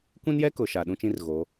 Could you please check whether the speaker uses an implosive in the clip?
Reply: yes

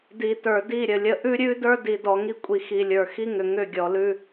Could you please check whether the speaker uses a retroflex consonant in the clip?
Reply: no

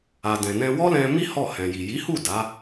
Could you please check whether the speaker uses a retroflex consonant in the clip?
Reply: no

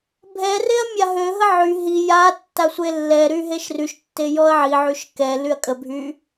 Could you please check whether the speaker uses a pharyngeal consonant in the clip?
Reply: yes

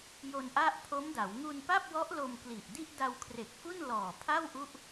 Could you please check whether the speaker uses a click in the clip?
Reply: no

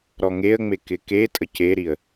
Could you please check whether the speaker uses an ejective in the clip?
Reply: yes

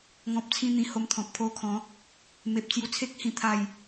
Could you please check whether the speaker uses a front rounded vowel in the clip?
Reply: no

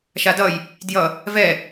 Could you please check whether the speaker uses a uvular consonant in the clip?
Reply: no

